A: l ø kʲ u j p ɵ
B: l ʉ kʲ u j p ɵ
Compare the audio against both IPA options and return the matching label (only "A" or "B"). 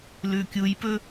B